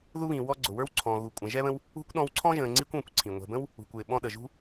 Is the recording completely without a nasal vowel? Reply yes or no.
no